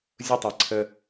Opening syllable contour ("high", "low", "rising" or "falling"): falling